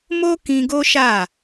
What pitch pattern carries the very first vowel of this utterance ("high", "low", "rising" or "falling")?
high